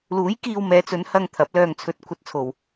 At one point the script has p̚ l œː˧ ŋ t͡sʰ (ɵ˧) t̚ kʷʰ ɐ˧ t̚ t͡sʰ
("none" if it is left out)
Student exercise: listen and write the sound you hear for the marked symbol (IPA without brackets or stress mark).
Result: ɵ˧